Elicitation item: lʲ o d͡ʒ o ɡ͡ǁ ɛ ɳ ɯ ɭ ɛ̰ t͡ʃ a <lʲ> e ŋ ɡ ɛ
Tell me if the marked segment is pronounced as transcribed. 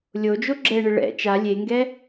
yes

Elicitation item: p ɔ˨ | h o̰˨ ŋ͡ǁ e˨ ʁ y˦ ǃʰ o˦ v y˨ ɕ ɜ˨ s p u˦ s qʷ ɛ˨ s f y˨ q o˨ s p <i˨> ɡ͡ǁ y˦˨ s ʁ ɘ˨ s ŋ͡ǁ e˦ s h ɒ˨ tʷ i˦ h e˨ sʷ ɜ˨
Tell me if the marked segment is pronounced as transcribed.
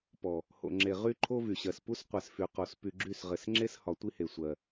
no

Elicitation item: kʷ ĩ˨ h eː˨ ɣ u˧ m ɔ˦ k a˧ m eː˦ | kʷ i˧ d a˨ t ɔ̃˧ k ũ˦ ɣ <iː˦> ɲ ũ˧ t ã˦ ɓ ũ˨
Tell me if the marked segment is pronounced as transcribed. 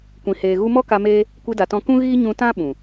yes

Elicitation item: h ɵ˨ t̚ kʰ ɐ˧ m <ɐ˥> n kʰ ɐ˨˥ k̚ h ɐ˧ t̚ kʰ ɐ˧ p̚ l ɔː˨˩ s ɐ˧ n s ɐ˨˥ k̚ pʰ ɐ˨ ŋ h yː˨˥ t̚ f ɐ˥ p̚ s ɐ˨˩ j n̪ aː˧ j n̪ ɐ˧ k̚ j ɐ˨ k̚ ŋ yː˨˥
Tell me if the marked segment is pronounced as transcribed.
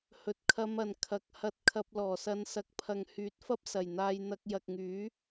no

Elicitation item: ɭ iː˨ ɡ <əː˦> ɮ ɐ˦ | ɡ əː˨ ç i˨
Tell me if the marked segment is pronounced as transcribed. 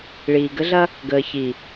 no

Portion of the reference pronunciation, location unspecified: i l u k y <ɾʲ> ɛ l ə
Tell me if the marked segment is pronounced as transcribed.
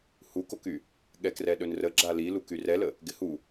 no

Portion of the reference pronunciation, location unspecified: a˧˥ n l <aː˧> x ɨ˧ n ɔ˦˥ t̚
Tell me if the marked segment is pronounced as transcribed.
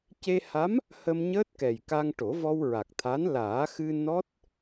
no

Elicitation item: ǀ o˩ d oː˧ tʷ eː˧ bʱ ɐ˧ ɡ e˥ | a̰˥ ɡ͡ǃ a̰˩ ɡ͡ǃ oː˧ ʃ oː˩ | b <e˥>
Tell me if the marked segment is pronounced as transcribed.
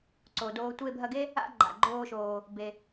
no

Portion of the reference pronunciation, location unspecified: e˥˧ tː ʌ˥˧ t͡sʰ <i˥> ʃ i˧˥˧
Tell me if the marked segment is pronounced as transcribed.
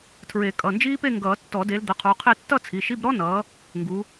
no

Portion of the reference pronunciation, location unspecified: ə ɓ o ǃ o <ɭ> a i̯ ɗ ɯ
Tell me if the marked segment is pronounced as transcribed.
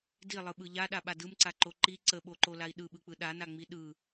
no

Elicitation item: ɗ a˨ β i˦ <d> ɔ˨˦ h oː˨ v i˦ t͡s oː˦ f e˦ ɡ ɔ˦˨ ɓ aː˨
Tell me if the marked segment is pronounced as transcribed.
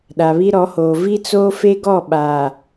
no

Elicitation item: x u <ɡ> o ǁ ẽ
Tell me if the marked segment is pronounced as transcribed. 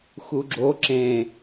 no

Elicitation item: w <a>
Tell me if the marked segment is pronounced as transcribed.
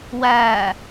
no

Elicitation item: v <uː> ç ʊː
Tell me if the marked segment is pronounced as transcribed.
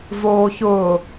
no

